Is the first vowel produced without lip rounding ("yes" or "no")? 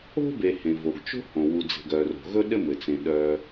no